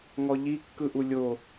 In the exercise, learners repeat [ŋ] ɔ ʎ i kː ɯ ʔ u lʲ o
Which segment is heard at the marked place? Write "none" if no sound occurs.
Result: ŋ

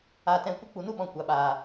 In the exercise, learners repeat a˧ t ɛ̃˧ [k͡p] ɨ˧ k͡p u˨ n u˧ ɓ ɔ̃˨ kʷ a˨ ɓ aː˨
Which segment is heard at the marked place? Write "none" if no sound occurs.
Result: kʷ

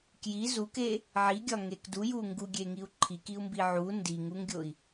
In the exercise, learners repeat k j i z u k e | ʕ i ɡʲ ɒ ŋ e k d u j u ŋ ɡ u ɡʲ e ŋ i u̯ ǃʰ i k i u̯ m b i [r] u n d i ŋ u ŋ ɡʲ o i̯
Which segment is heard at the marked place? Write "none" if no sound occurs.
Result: ʕ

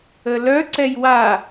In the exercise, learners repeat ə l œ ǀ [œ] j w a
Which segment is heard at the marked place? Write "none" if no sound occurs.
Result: ɛ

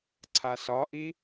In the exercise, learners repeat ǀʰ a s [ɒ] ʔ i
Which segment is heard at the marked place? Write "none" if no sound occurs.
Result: ɒ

